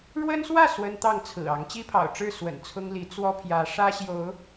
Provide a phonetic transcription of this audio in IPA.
ɻwə˦nswä˥˨ swə˦nt̪ɑ˥˨ŋ t͡sʰɹ̩˨˩ɑ˨˦ŋ t͡ɕi˦pʰɑ̰˨˩ʊ̯ʈ͡ʂɻ̩˥˨ swə̰˨˩n t͡sʰʊ˦ŋli˨˦ t͡swɔ˦pʰjä˨˦ ʂä˦ɕjo˨˦ʊ̯

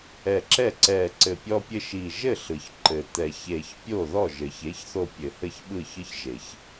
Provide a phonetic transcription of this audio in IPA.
ɛ˧˩ǁɛ˥˩ ǀɛ˧˩ ǀɘ˧˩pʲɔ˦pʲɘ˦ʃi˧˩ ʒɘ˥˩ɬɯ˩ç ǃɘ˩t̪ɛ˨˩˦çe˧˩ç pʲo˥˩ðɔ˥˩ ʒɘ˩çe˩˥çθo˧˩ pʲɘ˨˩˦hɘ˥˩çɓɯ˥˩ çɯ˦çʒe˨˩˦ç

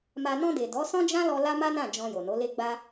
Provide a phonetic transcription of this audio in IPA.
ma˧ nɔ̃˧de˨ dɔ˨˦sɔ̃˦d͡ʒã˦lɔ˧ la˦ma˦nã˦˨ d͡ʒɔ̃˧jo˨no˨˦le˦ ɡ͡ba˦

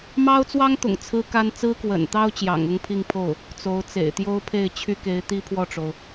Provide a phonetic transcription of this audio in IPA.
mɑ˥ʊ̯t͡swɑ˥ŋt̪ʊ̰˨˩ŋ t͡sʰɹ̩˥ka˥n t͡sɹ̩˥kwə̰˨˩nt̪ɑ˥ʊ̯ t͡ɕjɑ̰˨˩ŋʊ˥ŋpʰi˥˧ŋpʰo˥˩ʊ̯ | t͡so˧˥ʊ̯t͡sḛ˨˩ɪ̯ t̪jo˥ʊ̯pʰe˥˩ɪ̯t͡ɕʰy˥ke˧˥ɪ̯ t̪i˥pʰwɔ˥˩ʈ͡ʂo˩ʊ̯

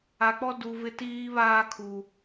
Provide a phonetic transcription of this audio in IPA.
a˨k͡pɔ˦ du˨vɪ˦tiː˦ βaː˦kʰu˨

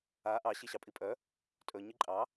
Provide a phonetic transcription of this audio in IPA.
a ʔɑ ɕiɕɑpʼipʼœ | tʼɵ ɲiǃʼɑ

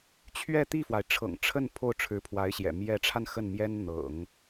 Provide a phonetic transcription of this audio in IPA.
t͡ɕʰɥɛ˥˧ t̪i˥˩fwa˩ɪ̯ ʈ͡ʂʰɤ̰˨˩ŋ ʈ͡ʂʰə˥˧n pʰo˥˩ʊ̯ʈ͡ʂʰɻ̩˧˥pʰwa˧˥ɪ̯ɕjɛ̰˨˩ mjɛ˧˥ʈ͡ʂʰa˧n xə˥˩nmjɛ˥n n̪ɤ̰˨˩˦ŋ

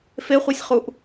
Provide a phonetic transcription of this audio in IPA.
feχʷesʲχuʔ

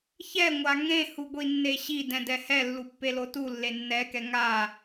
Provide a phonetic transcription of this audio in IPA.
çɛŋʷa ŋẽhuɡʷi nːeɕi dɛ̃dɛhɛ lːupːelotu lːenːɛkɛ ŋa

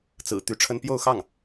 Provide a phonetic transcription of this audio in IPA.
t͡sɹ̩˨˩ t̪y˧˥ʈ͡ʂʰə˥n pjo˥˧ʊ̯xɑ˥˩ŋ

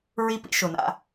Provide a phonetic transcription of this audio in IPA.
ɹi˦pḭ˦ʃʊ˨na̰˦

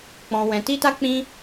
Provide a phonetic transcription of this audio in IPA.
k͡pɔ̃˧wɛ̃˧ ti˦ta˦k͡pĩ˦

